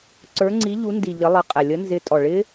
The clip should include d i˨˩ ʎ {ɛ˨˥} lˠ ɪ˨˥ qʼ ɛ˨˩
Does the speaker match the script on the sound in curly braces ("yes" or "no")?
no